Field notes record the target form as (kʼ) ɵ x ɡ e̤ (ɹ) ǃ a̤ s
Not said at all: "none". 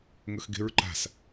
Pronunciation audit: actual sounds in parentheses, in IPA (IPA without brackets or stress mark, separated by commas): ŋ, ɹ